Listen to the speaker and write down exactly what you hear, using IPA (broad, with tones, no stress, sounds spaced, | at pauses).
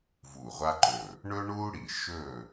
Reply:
v u˧˩ ʁʷ a˥ ǃ ɵ˧˩ | ɳ ɵ˥ ɳ u˥ ɽ i˧˩ ʃ ɵ˥˨